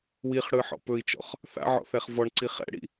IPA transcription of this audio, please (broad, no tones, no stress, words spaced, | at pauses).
wiχɽɯ ħɔ̰pɵi̯t͡ʃɔ̰χ | θa̰ʕɔ̰ θɛχvɔɳǀi χɛ̰ɽḭ